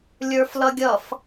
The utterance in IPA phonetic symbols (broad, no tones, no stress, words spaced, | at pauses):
lʲə˞flʌɡʲʌf